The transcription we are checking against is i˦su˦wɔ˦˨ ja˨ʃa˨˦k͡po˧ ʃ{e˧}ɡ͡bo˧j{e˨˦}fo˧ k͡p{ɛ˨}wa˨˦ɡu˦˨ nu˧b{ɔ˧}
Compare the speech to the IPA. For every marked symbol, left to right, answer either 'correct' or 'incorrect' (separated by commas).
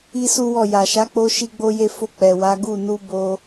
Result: incorrect, incorrect, correct, incorrect